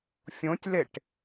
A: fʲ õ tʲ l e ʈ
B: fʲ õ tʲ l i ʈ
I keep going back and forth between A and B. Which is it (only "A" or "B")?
A